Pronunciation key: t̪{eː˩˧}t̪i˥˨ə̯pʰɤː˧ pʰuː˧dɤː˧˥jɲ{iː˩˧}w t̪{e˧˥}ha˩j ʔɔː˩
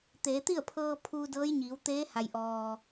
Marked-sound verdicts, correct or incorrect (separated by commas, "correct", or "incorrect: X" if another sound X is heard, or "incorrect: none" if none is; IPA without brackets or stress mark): correct, correct, incorrect: eː˧˥